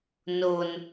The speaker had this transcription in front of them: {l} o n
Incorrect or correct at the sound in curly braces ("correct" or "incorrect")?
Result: incorrect